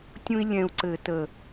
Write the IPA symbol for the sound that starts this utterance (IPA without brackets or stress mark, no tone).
tʲ